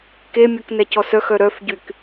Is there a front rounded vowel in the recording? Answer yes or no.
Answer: yes